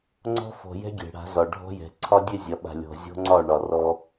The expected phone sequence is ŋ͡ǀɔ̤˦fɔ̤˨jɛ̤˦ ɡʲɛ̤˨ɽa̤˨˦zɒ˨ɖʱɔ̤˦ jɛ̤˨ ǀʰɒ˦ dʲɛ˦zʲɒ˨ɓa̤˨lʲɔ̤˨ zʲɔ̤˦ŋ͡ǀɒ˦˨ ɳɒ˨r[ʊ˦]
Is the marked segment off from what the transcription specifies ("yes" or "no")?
yes